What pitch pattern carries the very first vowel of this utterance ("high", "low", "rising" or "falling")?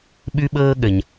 high